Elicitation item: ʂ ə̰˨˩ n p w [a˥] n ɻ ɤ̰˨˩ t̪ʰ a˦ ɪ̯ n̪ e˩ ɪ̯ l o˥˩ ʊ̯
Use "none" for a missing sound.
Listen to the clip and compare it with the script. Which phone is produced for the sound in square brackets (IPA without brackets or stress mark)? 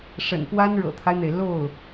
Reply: a˥